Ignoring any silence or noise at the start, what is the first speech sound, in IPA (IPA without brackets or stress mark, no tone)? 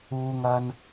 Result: uː